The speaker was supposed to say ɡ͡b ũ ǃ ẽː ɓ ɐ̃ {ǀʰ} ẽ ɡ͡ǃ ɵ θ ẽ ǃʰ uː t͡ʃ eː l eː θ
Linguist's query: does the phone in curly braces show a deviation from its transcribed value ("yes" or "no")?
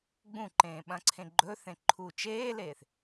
no